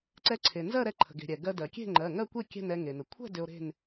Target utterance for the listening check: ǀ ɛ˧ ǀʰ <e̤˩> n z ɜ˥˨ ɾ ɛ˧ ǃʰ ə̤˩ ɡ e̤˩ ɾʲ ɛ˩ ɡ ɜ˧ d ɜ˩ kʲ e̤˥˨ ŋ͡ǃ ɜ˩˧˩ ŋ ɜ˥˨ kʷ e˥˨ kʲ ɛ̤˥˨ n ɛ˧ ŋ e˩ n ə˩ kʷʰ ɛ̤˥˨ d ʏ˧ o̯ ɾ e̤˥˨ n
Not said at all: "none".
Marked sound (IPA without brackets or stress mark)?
e˩